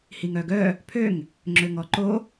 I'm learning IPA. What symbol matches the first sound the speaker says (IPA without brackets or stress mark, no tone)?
h